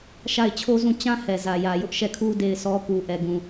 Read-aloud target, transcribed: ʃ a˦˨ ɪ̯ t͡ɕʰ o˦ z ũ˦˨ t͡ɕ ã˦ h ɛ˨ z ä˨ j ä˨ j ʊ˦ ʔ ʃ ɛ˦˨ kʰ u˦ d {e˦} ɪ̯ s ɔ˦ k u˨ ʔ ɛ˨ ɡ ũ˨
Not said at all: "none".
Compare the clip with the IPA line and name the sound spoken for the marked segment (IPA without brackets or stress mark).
e˦˨